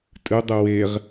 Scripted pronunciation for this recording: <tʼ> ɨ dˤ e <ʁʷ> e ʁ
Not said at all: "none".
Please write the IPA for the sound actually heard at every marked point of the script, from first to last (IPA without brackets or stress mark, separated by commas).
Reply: tʼ, w